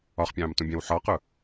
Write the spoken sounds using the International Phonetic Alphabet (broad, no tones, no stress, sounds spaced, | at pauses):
ɒ χ pʲ ɑ̃ː m t ũ bʲ æ̃ w ħ ɒ q ʊ